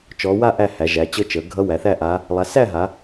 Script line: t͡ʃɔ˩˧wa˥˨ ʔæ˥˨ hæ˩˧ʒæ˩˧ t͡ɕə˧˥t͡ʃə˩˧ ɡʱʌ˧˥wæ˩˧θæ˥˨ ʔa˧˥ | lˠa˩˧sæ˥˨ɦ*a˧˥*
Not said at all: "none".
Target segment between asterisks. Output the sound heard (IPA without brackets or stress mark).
a˩˧